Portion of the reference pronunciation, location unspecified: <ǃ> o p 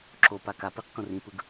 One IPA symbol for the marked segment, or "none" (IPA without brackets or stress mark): ǁ